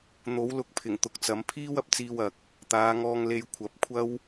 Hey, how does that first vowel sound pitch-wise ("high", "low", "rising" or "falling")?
rising